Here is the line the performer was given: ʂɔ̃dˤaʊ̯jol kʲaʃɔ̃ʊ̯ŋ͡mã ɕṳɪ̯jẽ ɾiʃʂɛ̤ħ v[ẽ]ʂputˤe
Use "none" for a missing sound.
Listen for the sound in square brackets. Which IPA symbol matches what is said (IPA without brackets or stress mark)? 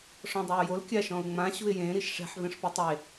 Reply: ẽ